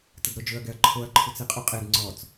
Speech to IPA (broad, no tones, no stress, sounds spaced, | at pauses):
t ə d ɾ o d͡ʒ ɵ ɐ̯ ɡ ɛ ɐ̯ ǃʰ o ɐ̯ ǃʰ u t͡s e qʼ u qʼ e d ŋ͡ǀ ɔ t͡s